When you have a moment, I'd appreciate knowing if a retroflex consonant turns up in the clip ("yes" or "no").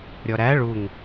yes